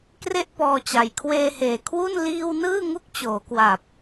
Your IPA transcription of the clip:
kre˥˩ʔpɔː˧t͡ɕa˨˩j kʰweː˧heː˨˩ kʰwu˥˩n liː˧w nɯː˥˩ŋu˦˥k̚t͡ɕoː˩˦kwa˨˩p̚

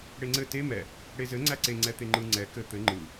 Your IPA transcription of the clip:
ɽeŋ͡ǀɘ te mɛ | ɽezɘ ŋ͡ǀæǀe ŋ͡ǀɛt̪eŋ͡ǃɯ ŋ͡ǀɛ kɘ t̪ɘ ŋ͡ǃɯ

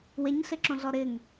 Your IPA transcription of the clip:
weɲɬɪǁõɮɔ ɾɪŋ

